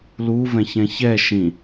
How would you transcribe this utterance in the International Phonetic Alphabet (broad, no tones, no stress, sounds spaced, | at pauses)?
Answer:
l u v ɛ̃ ç ɛ̃ ç ɛ ʃ ĩ